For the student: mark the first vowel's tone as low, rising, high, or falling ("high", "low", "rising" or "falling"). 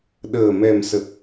low